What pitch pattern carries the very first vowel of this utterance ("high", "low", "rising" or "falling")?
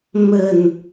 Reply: falling